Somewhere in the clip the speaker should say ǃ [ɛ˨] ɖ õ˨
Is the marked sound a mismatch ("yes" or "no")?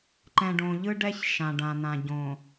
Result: yes